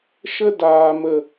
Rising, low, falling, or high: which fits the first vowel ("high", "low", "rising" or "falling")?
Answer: high